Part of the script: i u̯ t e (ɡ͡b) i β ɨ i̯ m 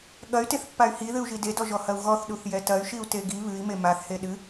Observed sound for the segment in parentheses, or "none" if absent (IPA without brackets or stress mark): ɡ